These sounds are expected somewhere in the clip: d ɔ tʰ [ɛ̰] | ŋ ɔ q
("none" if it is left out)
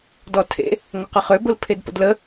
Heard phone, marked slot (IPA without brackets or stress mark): ḛ